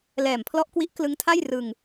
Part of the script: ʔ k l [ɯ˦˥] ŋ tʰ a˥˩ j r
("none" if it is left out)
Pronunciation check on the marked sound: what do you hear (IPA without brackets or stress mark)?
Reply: ɯ˦˥